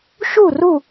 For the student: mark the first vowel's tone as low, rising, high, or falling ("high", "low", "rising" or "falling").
falling